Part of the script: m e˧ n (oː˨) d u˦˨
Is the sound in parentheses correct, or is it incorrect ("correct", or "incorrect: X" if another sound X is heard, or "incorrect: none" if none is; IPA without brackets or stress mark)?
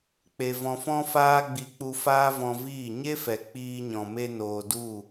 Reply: correct